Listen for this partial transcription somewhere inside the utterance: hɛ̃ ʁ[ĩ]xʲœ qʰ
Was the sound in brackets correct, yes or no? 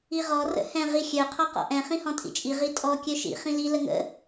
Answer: no